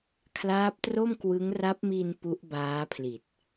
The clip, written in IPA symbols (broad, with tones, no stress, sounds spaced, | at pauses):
kʰ l aː˦˥ p̚ t r o˥˩ m k w ɯ˦˥ ŋ r a˦˥ p̚ m iː˧ n p u˦˥ ʔ b aː˦˥ pʰ l i˨˩ t̚